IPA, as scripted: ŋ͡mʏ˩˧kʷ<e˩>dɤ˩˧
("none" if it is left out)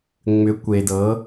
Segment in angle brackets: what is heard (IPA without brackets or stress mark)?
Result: e˩